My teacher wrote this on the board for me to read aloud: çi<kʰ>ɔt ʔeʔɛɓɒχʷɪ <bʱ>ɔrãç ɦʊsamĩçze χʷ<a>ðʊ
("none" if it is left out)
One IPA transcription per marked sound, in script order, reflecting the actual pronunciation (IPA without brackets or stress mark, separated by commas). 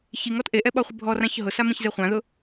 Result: ŋ, bʱ, ã